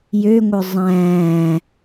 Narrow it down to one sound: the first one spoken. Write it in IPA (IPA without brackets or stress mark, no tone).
j